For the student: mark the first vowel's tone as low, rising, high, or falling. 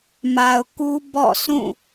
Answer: low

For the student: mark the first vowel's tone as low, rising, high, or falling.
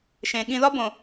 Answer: low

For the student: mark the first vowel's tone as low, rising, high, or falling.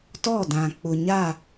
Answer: falling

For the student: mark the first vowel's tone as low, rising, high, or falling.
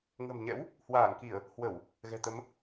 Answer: low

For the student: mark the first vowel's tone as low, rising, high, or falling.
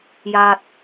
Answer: low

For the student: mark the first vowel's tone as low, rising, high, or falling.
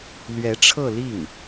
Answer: rising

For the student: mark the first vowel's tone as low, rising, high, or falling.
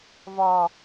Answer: low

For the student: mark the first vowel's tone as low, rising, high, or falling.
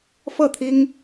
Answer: falling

